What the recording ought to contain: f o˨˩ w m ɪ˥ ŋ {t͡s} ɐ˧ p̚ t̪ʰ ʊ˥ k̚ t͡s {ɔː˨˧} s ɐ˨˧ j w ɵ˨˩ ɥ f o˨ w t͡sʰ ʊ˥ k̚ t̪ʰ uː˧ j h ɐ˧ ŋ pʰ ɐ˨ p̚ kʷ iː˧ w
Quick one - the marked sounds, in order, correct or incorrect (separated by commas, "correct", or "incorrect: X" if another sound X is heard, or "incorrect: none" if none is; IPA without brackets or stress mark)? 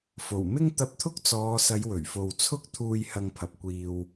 incorrect: t̪, correct